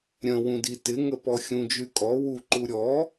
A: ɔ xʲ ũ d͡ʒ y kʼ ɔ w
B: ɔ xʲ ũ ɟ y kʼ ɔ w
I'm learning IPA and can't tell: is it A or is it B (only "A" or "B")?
A